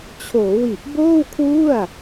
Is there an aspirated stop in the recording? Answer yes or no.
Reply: yes